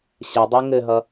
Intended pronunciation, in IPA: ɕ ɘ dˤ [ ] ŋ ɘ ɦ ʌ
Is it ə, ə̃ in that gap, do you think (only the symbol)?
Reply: ə